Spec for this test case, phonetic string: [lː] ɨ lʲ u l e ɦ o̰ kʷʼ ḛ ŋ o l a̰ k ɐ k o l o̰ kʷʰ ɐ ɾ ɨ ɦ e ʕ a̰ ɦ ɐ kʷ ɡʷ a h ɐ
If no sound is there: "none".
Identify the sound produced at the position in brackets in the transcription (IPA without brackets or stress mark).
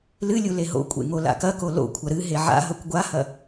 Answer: l